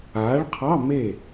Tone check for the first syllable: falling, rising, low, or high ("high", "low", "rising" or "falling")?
rising